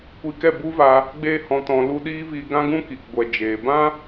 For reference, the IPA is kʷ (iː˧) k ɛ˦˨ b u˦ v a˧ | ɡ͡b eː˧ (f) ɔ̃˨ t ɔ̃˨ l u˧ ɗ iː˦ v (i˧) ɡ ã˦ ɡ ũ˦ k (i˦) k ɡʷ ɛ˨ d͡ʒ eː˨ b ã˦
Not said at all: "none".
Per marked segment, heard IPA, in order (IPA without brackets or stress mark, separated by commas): i˧, h, i˧, i˨